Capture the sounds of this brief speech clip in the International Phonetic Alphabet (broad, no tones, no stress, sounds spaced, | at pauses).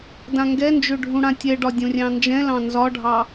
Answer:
d ã ŋ ɡ ɛ n d͡ʒ ø ɖʱ ũ ɽ ã tʲ ɛ ɖ ɒ dʲ õ rʲ ɑ̃ n d͡ʒ ɛ̃ l ɑ̃ n z ɒ ɖʱ ɑ